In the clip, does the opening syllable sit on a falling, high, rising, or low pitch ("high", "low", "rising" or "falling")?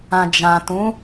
low